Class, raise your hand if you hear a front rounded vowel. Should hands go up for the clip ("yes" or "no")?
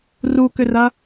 yes